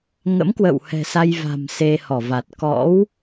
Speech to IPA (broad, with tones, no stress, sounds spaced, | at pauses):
ŋ ə̰˧˥ m k w ə̰˧˨ w h ɛ̤˨˩ s a˧ j v a̤˨˩ m s e˧ h ɔ˧˩ v a˨˩ t̚ k ɔ̰˧˥ w